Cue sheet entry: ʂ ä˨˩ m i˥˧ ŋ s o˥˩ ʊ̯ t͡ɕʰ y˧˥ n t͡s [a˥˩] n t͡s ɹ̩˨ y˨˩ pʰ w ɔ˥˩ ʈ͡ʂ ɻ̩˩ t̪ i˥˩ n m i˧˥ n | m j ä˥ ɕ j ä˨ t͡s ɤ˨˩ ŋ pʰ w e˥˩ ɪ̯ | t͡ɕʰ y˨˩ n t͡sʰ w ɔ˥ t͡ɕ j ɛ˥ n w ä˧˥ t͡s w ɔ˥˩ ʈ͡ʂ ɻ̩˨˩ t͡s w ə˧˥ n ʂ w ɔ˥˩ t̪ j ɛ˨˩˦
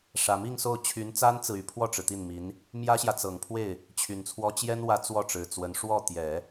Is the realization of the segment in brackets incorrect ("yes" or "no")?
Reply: yes